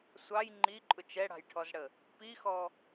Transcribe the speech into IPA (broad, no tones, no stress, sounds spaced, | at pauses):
sʷ ɑ j ŋ͡ǃ i ǃʼ ʊ t͡ʃ ɛ ɽ ɑ̤ j ʈʰ ɔ z ɽ ə | p i x ɔ